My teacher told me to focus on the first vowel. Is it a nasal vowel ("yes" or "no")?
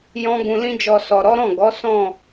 yes